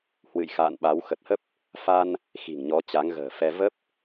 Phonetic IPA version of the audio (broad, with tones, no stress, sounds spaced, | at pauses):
h w ɨ̰˧˨ j x a̰ː˧˨ n ɓ a˨˦ w x ə˨˩ t̚ h ə˦˥ p̚ | f a˧ n | x i̤˨˩ ŋ ɲ ɔ˨˦ t͡ɕ a˨˦ ŋ ɣ ə̤ː˨˩ f ɛ˧ v ə˦˥ p̚